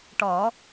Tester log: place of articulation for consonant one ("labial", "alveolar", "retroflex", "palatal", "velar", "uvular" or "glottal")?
retroflex